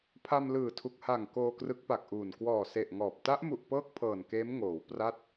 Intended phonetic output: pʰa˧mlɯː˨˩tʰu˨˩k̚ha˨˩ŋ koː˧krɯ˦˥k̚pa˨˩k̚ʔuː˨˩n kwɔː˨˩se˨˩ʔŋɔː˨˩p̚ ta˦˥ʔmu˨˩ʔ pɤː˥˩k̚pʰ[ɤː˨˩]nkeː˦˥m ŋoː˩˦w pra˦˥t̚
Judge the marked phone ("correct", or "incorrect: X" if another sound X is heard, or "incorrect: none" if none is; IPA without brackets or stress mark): correct